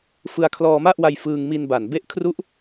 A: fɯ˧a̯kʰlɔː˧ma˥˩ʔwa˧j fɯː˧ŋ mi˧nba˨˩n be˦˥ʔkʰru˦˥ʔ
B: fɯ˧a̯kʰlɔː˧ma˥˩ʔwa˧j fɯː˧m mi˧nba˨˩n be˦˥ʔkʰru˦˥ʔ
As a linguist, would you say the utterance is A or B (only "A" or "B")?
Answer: A